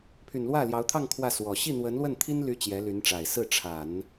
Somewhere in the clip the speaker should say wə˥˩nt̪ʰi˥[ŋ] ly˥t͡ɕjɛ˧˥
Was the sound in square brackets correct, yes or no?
no